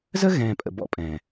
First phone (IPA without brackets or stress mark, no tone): z